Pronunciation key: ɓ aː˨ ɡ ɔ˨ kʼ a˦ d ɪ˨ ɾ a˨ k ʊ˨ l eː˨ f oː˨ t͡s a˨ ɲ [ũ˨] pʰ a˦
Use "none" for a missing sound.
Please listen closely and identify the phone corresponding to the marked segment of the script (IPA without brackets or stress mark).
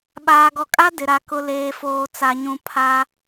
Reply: ũ˨